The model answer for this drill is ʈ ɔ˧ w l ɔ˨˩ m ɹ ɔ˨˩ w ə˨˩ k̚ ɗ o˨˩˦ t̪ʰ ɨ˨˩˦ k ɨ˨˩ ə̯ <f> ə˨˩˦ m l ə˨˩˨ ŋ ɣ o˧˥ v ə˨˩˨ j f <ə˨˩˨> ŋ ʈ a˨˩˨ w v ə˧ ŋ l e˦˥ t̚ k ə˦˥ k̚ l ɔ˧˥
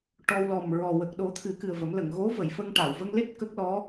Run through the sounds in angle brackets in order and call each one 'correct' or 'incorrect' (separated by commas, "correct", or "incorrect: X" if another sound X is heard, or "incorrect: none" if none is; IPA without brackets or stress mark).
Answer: incorrect: v, incorrect: ə˧